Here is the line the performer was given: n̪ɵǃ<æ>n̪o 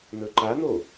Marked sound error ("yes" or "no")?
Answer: yes